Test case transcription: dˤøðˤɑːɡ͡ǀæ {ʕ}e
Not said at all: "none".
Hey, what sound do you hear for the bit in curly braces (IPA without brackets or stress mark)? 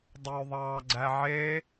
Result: ʕ